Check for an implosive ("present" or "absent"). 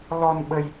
present